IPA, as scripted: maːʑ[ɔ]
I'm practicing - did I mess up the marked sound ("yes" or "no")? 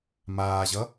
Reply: yes